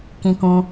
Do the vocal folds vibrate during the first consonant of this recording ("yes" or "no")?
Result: no